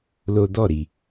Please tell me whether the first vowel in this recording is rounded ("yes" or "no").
yes